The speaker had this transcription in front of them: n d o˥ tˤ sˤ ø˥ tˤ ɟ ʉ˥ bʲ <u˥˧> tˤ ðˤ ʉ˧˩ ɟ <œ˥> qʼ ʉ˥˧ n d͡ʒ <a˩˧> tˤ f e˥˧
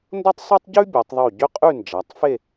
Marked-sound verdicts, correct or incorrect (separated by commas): incorrect, incorrect, correct